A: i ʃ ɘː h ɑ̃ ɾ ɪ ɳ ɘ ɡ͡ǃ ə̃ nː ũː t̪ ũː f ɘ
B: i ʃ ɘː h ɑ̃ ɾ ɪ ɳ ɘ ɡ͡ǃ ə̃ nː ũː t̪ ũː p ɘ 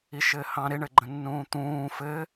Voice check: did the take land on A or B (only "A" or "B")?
A